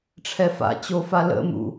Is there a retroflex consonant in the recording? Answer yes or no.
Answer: yes